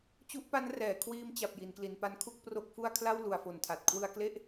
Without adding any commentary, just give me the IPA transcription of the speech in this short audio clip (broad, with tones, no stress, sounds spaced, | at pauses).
t͡ɕ u˦˥ ʔ p a˦˥ n r ɛː˩˦ kʰ w iː˧ m t͡ɕ a˨˩ p̚ j i˩˦ n k l i˩˦ n p a˦˥ n kʰ u˥˩ k̚ p r o˦˥ k̚ f u˥˩ a̯ kʰ l a˥˩ w l u˨˩ a̯ f o˨˩ n tʰ a˨˩ t̚ kʰ w ɯ˧ a̯ k l e˥˩ ʔ